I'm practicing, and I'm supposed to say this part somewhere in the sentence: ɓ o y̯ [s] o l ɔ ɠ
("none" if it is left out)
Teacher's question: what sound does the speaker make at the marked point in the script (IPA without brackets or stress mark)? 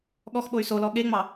s